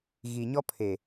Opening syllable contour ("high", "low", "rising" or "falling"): low